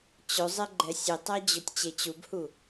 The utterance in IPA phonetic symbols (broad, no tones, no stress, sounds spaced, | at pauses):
t͡ɕ ɵ zˤ e ɡ͡ǃ ɛ sʲ e tˤ æ d͡ʑ ɵ tʲ t͡ɕ e t͡ɕ u b h u